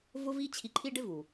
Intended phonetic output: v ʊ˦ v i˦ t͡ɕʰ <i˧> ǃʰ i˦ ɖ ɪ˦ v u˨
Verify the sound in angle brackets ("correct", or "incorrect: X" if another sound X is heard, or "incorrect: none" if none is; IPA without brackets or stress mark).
correct